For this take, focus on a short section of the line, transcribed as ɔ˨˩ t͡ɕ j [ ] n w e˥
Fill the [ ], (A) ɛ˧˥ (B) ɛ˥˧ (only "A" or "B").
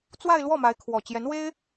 A